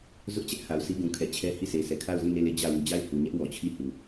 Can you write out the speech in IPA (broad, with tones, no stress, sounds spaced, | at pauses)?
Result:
z ʊ˦ ʔ t͡ɕ ɛ˦ ʔ h a˨ ʊ̯ s i˦ ɡ ũ˨ kʰ ɛ˨ t͡ɕʰ ɛ˦ h i˦˨ s e˨ s ɛ˨ kʰ a˦˨ ʊ̯ z ĩ˦˨ n e˦˨ l e˦˨ d͡ʑ ä˦˨ w u˨ d͡ʑ a˦˨ ɪ̯ h u˨ ɲ ɛ˦ ʔ w ɔ˨ t͡ɕʰ i˦˨ h u˨